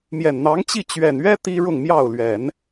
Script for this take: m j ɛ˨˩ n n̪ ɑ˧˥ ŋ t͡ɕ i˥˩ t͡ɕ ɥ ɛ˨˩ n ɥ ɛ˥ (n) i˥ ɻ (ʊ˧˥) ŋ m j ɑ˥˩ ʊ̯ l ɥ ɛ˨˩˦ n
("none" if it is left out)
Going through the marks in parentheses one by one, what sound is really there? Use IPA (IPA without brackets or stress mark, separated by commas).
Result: t̪, ʊ˥˧